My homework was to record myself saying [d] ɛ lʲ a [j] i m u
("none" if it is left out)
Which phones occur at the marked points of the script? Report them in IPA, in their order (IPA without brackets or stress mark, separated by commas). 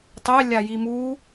tˤ, j